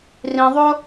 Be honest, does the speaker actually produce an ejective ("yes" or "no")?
no